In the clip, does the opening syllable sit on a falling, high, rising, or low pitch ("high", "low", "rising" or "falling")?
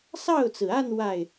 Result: falling